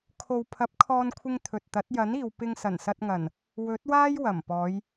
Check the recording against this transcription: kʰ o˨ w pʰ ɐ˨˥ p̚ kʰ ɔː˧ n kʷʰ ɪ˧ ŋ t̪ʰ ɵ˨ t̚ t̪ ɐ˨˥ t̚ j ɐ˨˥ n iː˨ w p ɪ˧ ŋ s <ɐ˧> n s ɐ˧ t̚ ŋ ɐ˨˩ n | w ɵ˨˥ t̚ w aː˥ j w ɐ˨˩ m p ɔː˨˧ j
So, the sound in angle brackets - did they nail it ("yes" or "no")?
no